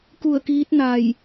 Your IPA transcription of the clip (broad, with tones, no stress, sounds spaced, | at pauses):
k u˧˩ ə̯ k iː˧˥ t̚ n a˧˩ j